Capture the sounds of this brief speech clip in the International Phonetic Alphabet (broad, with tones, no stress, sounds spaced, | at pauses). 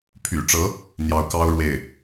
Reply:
pʰ y̰˨˩ ʈ͡ʂ ɤ˧˥ | n̪ j ɑ˧˥ ʊ̯ k ɑ˥ ʊ̯ ɻ w e˥˩ ɪ̯